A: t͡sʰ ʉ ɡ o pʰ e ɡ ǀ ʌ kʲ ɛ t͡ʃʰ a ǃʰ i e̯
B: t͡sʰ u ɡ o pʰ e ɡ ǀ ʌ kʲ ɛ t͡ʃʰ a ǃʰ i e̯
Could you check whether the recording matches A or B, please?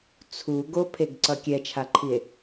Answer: B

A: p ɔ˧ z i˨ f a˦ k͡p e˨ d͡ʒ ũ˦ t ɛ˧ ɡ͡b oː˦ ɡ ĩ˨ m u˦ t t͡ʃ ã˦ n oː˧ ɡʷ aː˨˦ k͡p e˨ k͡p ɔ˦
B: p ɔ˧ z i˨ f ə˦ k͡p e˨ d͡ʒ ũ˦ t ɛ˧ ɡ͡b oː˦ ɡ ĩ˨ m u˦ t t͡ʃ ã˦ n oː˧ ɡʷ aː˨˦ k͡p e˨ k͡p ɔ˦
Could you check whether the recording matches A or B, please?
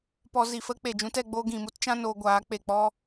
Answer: B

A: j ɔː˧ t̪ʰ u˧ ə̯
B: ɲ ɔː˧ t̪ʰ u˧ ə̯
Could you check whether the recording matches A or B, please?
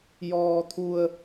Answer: A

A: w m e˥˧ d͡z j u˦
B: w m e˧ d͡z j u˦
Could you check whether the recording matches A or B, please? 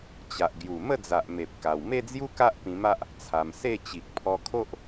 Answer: A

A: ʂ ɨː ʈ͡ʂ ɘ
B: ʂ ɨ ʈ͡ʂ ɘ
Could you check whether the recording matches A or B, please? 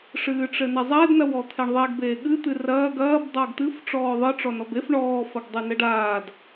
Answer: A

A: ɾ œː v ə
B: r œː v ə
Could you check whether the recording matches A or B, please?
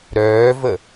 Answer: A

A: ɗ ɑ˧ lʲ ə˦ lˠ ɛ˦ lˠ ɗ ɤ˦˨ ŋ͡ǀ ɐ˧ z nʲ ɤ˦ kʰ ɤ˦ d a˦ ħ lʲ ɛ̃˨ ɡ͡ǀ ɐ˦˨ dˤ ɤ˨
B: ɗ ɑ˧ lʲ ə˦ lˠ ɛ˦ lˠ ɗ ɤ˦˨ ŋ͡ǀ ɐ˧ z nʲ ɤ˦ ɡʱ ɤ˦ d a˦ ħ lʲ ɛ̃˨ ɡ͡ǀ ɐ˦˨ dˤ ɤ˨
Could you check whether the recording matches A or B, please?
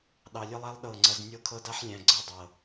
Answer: A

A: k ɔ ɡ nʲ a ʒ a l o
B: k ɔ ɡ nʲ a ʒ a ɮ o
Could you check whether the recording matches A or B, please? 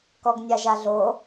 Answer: B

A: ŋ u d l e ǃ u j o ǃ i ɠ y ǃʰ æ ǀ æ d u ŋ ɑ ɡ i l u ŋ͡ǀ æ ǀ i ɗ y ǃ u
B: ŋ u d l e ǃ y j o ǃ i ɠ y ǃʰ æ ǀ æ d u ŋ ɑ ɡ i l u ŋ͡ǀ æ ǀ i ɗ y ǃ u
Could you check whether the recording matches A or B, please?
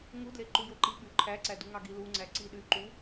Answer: A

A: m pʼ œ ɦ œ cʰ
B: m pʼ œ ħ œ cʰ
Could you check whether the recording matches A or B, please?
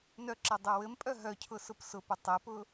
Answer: A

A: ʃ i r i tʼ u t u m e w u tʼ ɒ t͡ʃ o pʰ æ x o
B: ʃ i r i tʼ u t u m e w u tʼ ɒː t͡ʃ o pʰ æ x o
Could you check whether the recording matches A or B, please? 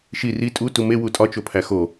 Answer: A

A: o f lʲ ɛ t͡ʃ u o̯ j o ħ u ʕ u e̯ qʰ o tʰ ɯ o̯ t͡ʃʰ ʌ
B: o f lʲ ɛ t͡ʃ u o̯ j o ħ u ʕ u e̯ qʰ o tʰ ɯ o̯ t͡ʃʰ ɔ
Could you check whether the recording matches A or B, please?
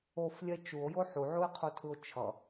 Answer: A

